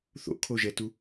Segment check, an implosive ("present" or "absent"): absent